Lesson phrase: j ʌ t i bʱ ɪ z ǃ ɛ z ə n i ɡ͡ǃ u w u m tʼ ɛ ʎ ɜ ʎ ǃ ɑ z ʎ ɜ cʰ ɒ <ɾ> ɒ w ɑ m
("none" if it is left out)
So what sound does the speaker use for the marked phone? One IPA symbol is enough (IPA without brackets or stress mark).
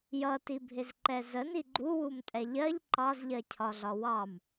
ɮ